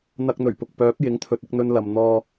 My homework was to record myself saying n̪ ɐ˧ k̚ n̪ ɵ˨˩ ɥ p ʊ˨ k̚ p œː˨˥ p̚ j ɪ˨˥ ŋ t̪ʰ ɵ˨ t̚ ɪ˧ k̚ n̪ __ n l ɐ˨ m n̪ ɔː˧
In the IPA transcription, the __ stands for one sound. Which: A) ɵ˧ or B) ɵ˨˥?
A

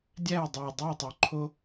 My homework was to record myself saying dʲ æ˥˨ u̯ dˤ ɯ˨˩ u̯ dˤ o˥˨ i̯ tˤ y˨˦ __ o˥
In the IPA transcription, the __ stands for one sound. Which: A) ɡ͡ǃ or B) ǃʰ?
B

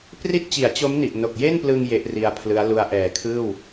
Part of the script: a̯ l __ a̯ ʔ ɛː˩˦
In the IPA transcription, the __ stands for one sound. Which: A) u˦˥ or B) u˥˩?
A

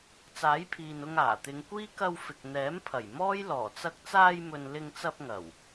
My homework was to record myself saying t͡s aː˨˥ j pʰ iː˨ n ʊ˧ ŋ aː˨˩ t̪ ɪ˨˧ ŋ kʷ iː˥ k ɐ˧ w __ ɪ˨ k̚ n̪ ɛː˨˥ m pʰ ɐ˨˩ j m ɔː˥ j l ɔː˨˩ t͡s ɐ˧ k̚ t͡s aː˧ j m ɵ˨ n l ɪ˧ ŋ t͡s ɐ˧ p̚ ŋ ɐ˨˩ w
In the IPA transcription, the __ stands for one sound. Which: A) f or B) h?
A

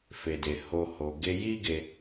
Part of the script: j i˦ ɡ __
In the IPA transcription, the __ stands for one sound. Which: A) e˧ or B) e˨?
A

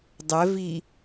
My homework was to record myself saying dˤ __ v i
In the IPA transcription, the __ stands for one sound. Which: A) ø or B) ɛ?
B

